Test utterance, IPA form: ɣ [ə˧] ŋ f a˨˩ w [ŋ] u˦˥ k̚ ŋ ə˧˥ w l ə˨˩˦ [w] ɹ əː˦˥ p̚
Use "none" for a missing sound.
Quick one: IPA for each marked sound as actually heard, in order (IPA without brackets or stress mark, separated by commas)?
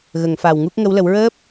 ə˨˩˨, ŋ, w